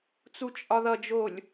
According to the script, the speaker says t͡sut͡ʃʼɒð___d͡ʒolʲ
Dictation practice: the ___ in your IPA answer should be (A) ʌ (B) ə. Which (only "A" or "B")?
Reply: A